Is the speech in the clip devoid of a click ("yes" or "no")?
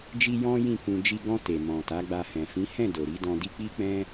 yes